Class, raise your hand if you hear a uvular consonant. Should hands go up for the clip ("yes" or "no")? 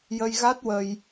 no